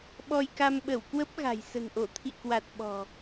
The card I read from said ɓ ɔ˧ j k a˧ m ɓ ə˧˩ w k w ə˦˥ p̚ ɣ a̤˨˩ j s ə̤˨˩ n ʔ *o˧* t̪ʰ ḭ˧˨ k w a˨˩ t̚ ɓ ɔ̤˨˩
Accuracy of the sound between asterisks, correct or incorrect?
incorrect